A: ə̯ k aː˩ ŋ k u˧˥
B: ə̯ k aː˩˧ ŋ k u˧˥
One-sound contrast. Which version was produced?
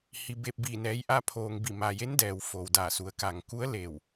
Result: A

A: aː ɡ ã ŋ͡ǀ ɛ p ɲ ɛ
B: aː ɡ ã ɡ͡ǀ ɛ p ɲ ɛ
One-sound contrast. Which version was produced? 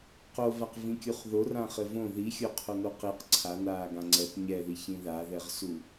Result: A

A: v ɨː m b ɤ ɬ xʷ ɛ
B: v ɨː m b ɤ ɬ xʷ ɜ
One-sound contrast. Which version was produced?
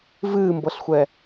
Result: A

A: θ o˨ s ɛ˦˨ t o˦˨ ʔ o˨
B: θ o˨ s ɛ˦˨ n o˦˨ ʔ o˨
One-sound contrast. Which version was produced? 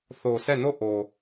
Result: B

